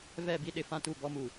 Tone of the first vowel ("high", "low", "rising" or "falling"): falling